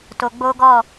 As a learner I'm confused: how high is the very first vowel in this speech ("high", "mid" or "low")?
mid